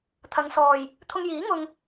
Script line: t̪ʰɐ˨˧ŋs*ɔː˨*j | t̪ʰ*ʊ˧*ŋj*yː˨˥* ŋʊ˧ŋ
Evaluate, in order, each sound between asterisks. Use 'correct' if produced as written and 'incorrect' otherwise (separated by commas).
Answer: correct, correct, incorrect